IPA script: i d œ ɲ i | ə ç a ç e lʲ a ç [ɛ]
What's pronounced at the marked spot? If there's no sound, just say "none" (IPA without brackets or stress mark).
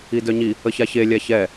ɛ